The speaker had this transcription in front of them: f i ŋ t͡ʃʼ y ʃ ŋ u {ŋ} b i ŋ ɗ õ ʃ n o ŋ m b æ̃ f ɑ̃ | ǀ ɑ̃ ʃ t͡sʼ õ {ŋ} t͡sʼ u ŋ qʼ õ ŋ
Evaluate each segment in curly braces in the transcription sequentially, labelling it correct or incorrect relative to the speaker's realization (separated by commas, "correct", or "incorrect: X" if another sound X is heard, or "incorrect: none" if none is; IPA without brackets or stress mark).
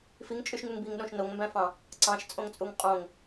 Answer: correct, correct